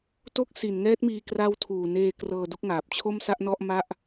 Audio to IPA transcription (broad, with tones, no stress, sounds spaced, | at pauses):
t o˥˩ k̚ s i˨˩ n ŋ ɛː˦˥ t̚ m iː˧ k r a˦˥ w tʰ uː˨˩ n eː˧ k r ɤː˧ d u˦˥ k̚ ŋ aː˨˩ p̚ t͡ɕʰ o˥˩ m s a˥˩ ʔ n ɔ˥˩ ʔ m a˥˩ ʔ